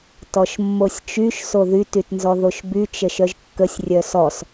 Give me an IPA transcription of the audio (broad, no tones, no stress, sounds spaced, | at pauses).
t ɔ ʃ mː o sʲ t͡ʃ y ʃ s o ð y t y t n z ɔ ð o ʃ b y t͡ʃ ə ʃ œ ʒ kː ə sʲ rʲ œ s ɔ s